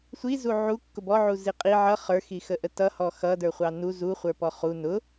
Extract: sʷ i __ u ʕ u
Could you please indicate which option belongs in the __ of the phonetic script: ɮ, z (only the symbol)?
z